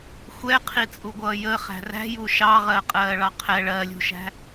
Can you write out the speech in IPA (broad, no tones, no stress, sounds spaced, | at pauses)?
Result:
xʷ ɛ qʰ i t͡sʼ u ɡʷ ʌː j ə χ æ̤ r æ̤ j u ʃ ɑ ʁ ɜ qʼ ɜː ɭ ɑ qʰ ɛ ɭ ɜ lʲ ṳ ʃ æ̤